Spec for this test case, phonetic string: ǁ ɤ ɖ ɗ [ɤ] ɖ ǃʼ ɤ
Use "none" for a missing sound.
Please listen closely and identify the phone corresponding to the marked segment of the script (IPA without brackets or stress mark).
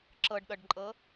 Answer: ɤ